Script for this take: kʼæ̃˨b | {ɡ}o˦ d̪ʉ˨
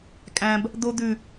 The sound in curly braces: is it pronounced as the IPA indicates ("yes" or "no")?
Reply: no